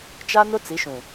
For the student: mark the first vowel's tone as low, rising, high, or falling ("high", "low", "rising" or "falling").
high